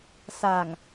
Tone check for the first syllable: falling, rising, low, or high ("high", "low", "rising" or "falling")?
low